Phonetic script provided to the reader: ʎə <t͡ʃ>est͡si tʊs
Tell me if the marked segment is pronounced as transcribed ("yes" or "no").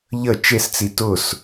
yes